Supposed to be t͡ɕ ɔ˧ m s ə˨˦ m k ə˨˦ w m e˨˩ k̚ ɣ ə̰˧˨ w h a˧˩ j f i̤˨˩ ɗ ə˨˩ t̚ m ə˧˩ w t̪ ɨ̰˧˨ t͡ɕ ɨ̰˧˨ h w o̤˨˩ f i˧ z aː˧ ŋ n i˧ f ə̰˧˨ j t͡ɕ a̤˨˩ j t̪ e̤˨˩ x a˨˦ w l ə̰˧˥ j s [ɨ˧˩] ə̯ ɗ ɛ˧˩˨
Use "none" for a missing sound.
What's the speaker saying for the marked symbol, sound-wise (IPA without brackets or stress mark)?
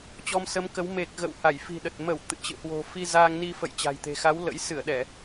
ɨ˧˩